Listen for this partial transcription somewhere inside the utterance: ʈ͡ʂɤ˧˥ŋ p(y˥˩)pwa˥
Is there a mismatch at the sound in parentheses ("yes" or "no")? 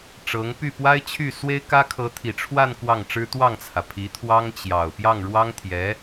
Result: no